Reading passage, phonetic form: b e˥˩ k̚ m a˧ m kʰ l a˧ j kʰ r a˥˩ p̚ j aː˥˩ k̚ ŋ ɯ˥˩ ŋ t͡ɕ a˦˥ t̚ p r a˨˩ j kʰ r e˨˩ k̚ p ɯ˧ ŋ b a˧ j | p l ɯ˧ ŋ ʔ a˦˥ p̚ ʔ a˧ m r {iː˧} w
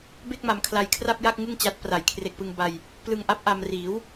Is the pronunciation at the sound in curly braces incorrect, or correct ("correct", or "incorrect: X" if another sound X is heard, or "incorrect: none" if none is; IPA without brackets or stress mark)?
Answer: incorrect: iː˩˦